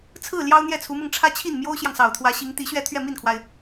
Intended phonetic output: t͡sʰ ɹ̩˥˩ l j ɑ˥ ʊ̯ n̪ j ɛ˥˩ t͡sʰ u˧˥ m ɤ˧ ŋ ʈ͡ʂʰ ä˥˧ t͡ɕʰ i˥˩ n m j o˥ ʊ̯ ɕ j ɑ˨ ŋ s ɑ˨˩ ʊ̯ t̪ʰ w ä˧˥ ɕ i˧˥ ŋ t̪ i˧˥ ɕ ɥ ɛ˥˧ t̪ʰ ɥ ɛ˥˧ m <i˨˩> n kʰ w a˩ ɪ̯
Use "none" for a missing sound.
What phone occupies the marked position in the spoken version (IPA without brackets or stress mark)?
i˥˩